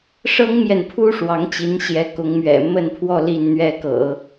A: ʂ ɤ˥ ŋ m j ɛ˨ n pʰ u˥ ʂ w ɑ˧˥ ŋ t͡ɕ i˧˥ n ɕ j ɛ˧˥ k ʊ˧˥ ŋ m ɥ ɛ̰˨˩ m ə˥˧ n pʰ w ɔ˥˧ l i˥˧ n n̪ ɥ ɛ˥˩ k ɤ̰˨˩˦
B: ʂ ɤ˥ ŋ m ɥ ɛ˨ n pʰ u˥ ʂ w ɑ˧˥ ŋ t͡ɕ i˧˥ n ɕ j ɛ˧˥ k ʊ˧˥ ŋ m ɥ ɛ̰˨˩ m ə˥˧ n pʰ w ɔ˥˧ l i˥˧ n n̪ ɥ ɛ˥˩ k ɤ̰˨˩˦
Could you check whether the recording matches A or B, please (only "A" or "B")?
A